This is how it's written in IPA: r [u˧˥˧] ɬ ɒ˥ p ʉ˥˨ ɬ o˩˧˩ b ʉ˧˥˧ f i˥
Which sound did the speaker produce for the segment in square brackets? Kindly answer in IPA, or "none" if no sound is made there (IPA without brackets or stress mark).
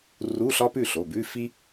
u˧˥˧